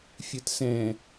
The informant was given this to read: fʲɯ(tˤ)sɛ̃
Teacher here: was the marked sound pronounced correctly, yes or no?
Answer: no